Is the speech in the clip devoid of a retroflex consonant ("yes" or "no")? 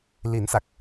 yes